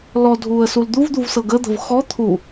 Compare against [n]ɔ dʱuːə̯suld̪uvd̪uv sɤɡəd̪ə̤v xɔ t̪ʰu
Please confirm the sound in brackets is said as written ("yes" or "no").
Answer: no